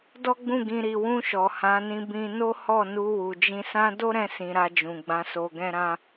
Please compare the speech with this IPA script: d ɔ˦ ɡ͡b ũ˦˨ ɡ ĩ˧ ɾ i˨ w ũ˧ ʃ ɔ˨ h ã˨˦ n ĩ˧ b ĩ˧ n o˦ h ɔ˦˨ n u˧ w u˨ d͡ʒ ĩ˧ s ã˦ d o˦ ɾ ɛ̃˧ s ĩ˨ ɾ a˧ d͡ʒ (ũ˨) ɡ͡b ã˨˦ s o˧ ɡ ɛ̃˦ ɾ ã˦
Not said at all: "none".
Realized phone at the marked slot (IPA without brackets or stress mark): ũ˨